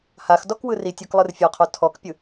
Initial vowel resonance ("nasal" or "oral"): oral